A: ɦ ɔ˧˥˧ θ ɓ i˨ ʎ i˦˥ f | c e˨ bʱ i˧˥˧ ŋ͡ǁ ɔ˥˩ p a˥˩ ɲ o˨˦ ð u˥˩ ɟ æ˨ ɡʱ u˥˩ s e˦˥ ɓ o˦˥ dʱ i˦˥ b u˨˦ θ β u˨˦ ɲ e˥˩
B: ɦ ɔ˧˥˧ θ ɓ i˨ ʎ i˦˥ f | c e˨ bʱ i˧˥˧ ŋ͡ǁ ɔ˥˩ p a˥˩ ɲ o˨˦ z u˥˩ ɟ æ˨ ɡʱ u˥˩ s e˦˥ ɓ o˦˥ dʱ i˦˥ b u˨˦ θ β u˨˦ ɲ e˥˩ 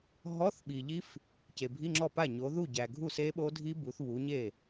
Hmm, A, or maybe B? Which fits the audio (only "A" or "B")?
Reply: A